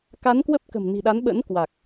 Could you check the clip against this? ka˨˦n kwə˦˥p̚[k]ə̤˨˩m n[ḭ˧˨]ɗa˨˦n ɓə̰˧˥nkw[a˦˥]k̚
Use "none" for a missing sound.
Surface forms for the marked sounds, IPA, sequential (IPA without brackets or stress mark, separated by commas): k, i̤˨˩, a˨˩